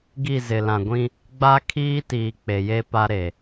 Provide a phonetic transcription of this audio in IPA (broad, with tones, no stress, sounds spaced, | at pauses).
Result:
ɡ i˦˨ z ɪ˨ l ã˨ ɡʷ ĩ˦ | ɡ͡b a˦ kʰ iː˦ t iː˨ k͡p e˨ j e˦ p a˦ ɾ e˨